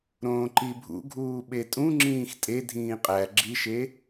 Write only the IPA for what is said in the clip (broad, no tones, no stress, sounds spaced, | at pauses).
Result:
ɾ õː ǃ i bʱ ṵ ɡʱ uː ɓ e tʼ ũ ŋ͡ǁ ĩː x tʼ e dʱ ĩː qʼ æ ɡ͡ǁ i ʃ e